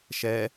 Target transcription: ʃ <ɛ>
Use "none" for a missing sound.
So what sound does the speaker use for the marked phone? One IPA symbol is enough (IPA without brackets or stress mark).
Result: ɛ